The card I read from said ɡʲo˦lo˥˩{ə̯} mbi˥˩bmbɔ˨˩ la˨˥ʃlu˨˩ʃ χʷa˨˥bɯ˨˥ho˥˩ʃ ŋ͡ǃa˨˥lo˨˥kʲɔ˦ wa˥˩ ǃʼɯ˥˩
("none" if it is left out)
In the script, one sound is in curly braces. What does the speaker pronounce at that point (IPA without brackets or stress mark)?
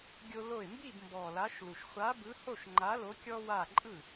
ɪ̯